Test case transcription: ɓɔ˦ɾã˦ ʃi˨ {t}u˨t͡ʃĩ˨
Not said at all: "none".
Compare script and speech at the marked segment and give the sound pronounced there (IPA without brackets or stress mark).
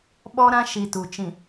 t